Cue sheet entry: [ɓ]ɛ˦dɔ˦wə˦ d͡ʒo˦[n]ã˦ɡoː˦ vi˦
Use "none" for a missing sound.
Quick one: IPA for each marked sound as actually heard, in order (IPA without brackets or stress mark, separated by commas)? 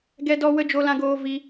ɡ, l